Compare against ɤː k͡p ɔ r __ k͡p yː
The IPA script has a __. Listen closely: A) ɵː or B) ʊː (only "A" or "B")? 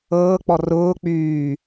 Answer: B